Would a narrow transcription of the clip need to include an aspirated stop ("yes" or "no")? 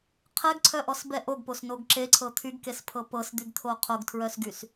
yes